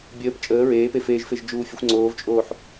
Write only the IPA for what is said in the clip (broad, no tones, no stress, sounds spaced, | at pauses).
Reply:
bʲ əː p t͡ʃʼ əː ɹ eː p e f eː ʒ f e ʒ d͡ʒ uː fʲ ə xʷ ŋ͡ǀ oː v t͡ʃʼ oː ħ